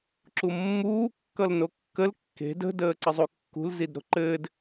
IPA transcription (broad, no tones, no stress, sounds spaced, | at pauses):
ǁ u mː uː kː ʌ l n o kː ə l kː e̤ d ə̤ d əː ǀ ə zˤ u kː ṳ l z i d ɾ o̤ ǃ ɘː d